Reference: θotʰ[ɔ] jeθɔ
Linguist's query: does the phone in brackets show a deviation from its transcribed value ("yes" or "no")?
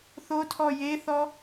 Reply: no